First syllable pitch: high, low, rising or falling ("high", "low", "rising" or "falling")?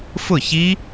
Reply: falling